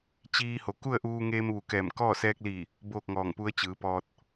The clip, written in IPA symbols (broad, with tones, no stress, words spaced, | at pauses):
t͡ɕiː˧ho˩˧ ku˥˨ə̯ʔuː˧ŋeː˧m ʋu˩˧kɛː˧˩mkɔː˥˨ sɛː˧k̚liː˧˩ | boː˥˨k̚ŋɔː˧˩ŋpu˧˥ə̯ t͡ɕɯː˩˧pɔː˧t̚